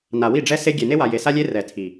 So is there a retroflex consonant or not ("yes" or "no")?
yes